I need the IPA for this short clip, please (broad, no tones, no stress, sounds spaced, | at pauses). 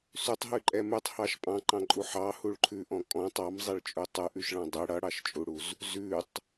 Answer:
s ʉ tˤ ɦ ʉ ǃʼ ɛ m ʉ tˤ h ɑ ʃ pʼ ɑ̃ ǃ ɑ̃ ǃʼ u ħ ɑ h u ɭ ǃʰ ʉ ʔ ɔ̃ kʼ ɔ̃ tˤ ɑ m zˤ ɛ ɭ t͡ʃʼ u tˤ ʉ ʔ ʉ ʃ ɭ ɑ̃ dˤ e ɽ ʌ ɽ ɑ ʃ t͡ʃʼ u ɽ u z | z ʉ tˤ